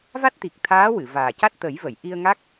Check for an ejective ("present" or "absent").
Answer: absent